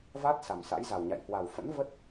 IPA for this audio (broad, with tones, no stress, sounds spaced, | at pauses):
v a˦˥ t̚ s a˨˩ m s a̰˧˥ j z a˨˩ w ɲ a̰˧˨ j h w a˨˩ w f ə̰˧˥ n v ə˦˥ t̚